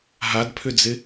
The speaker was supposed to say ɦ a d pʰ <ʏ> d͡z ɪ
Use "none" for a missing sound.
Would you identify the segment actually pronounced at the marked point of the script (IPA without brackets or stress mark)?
ʏ